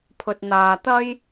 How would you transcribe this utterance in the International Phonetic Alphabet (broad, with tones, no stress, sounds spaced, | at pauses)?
pʰ ɵ˧ t̚ n̪ aː˧ t̪ ɐ˧ j